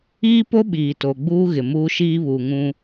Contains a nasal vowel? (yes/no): yes